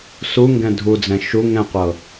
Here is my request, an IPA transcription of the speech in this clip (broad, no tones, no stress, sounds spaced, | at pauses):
s u ŋ ɡ ɛ̃ dʱ u d͡z ɛ̃ ʃ u ŋ ɛ̃ qʷ ɤ